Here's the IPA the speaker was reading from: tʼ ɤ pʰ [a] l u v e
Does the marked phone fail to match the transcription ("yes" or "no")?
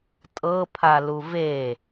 no